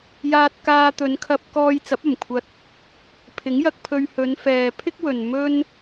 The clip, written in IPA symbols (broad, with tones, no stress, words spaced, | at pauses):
jaː˧t̚kaː˧t̪ɵ˨˧nkʰɐ˧p̚ kɔː˧jt͡sɐ˨˥p̚ɐ˨˩mkʷʰɐ˧t̚ | pʰɪ˨˥ŋjɐ˧k̚pʰɵ˧ɥ hɵ˨˧nfɛː˨pʰɪ˥k̚wɵ˨n mɵ˧n